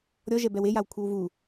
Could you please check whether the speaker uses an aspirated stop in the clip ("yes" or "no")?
yes